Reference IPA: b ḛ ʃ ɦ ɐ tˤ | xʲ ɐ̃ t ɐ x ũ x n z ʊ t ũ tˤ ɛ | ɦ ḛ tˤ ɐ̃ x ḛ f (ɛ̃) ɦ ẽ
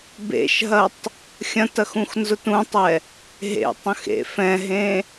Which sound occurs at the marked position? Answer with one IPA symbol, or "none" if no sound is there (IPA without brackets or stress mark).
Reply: ɛ̃